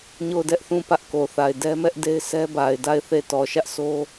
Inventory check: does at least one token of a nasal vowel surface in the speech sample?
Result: yes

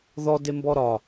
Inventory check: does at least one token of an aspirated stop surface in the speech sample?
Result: no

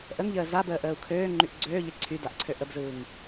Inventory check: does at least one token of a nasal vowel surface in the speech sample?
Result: no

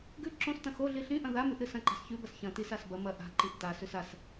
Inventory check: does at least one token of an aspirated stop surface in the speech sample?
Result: no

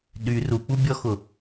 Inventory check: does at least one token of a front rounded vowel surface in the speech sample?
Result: yes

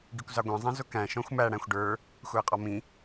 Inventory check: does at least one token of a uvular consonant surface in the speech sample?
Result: yes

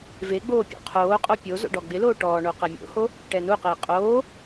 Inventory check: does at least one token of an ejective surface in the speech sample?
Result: yes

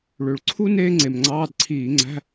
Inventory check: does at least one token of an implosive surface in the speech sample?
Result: no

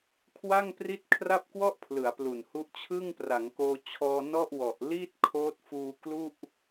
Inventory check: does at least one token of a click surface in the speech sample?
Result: no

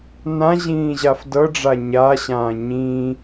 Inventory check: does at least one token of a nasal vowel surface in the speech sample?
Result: yes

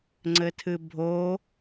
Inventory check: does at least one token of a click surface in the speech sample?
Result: yes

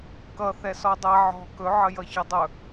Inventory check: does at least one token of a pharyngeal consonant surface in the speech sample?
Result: yes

